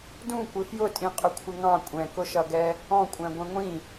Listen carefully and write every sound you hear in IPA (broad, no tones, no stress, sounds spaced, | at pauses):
d ũ kʷ ɪ f j ʊ tʼ ĩ qʼ ʊ kʷʰ ɪ ŋ ɑ̃ kʷʼ ɛ̃ k ʊ ʃ ʌ ɡ ɛ | ɔ̃ kʷʼ æ̃ ɡʷ ɛ̃ ŋʷ ĩ